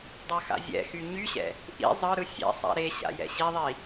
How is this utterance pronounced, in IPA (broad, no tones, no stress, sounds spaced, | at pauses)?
dˤ a x a̰ zʲ ɛ̰ x y ɲ y ɕ ɛ̰ | ʔ ḭ zˤ ɯ ɾ ɯ sʲ ɛ̰ sˤ a̰ ɾ e ɕ a̰ j ɛ̰ ɕ i ðˤ i